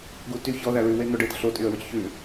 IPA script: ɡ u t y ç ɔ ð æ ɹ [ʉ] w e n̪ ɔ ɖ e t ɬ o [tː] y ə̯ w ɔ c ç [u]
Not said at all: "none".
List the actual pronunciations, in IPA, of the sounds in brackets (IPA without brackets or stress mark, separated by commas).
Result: ʉ, tʼ, ʉ